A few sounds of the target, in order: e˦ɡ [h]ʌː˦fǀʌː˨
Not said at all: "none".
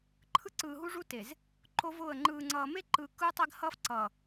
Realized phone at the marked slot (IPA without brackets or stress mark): h